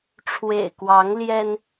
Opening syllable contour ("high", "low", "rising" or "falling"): low